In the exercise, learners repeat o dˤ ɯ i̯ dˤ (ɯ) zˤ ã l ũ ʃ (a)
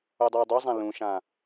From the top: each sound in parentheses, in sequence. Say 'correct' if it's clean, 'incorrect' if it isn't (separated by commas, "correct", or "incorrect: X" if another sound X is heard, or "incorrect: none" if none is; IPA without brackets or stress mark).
incorrect: u, incorrect: ã